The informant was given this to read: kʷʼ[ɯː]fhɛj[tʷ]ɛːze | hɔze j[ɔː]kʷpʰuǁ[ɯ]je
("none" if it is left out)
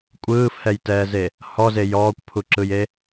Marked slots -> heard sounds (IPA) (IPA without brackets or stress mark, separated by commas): ɯː, t, ɔː, ɯ